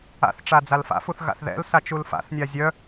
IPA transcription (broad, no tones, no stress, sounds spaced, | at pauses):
a̰ θ ʈ͡ʂ a d͡z a l f a̰ f u θ ɣ a̰ θ ð ɛ̰ l s a t͡ʃ u l f a̰ θ nʲ a zʲ œ